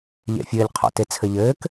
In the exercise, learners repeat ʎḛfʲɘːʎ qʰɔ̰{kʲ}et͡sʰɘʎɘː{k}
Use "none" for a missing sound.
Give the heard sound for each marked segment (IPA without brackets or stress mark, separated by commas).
t, k